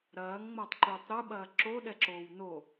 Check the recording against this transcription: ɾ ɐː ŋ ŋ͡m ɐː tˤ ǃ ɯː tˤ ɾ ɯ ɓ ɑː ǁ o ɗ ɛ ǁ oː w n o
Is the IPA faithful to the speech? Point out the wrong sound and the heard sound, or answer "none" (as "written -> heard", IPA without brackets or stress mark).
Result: ɑː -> ɐː